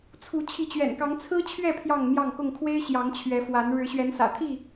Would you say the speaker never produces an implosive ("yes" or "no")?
yes